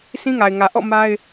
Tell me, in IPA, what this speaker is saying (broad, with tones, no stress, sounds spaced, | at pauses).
sʰ ĩ˦ ŋ a˨ ɪ̯ ŋ ä˨ ʔ ɔ̰˦˨ m a˦ ɪ̯